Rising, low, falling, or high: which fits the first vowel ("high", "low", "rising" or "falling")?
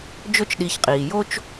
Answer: high